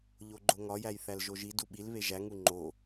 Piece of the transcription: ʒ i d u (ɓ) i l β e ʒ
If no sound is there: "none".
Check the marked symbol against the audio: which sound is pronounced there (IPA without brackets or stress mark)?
ɓ